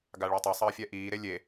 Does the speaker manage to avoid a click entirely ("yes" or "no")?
yes